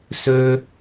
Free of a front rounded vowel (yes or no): no